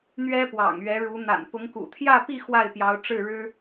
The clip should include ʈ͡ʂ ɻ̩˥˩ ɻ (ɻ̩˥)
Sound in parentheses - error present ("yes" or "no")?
no